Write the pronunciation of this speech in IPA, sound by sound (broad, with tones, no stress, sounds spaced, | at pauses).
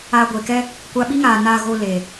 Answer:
a˧ ɡʷ e˨ k ɛ˦ | kʷ a˧ ɓ i˦ ŋ aː˨ n a˧ ɣ o˧ l e˨